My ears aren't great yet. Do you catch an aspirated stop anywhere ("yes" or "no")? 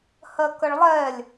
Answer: no